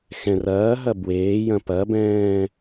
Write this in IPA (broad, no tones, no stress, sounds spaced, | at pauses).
x ɛ̃ r ɐː ɦ ɐ b w eː j ɐ̃ p ɐ b ɛ̃ː